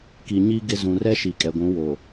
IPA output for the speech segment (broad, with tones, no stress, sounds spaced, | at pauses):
k i˨ ɲ i˦ ɡ ɪ˦ z ũ˨ r ɛ˦ ʃ i˨ kʼ ɛ˨ ɡʷ ũ˨˦ w o˨